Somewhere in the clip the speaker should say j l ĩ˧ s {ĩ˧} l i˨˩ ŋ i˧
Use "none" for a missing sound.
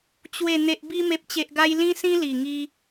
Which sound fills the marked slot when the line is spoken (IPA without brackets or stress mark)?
ĩ˧